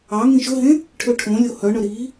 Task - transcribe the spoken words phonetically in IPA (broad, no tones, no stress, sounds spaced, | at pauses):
ɑ ŋ ĩ ʃ ɵ ɦ ẽ | ʈʰ ø ʈʰ õ lʲ o h œ ɳ œ ɾ i